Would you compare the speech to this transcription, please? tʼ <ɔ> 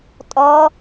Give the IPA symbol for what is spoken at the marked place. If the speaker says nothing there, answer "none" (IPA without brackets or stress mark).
ɔ